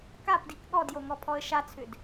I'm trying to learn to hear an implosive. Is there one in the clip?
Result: yes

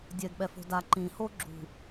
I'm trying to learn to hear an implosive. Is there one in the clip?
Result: yes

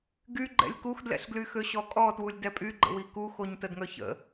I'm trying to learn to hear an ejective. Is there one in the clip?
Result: yes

